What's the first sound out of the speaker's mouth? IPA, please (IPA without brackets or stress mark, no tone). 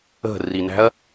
ə̤